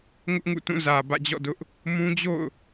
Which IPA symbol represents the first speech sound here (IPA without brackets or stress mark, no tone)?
ŋ